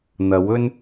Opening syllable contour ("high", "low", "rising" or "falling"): rising